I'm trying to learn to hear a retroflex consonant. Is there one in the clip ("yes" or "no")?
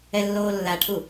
yes